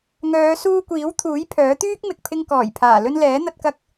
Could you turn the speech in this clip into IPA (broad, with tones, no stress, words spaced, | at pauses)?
ŋœː˨˧suː˧kʷiː˨˥w t̪ʰuː˨˥jpʰœː˨˥ t̪yː˥k̚ mɪ˨k̚pʰɪ˧ŋ kɔː˨˩jpʰaː˨˩ lɵ˧nlɛː˨˥ n̪ɐ˧t̚kɐ˧k̚